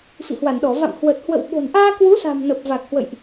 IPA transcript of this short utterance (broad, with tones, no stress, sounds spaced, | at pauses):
f ḭ˧˨ h w a˧˩ n ɗ ɔ˧˩ v a̰˧˨ m h w ə˨˩ t̚ h w ə̰˧˨ w ɓ o̤˨˩ n ʔ aː˧ k w u˨˦ s a̤˨˩ m n ə˨˩ p̚ v a˨˩ k̚ h w ə̰˧˨ j ʔ